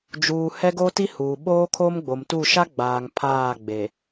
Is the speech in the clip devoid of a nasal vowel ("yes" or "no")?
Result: yes